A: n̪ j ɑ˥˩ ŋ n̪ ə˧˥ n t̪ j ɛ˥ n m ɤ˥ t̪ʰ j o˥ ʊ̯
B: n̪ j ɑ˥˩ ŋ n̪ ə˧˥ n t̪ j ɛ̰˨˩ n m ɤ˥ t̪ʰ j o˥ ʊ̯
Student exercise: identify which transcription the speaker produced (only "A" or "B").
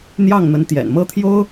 B